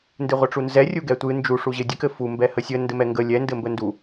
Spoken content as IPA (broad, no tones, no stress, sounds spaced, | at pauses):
n d ɨ ʁʷ ɘ ʈ͡ʂ u n z ɛ rʲ u ɡ ɛ tʷ ɨ n d͡ʒ u ʂ u ʑ ɘ dʲ ɘ k ɘ f u m b ɛ h ə sʲ ə n d ɘ m ɛ ŋ ɡ ə lʲ ɛ n d ɘ m b ə n d u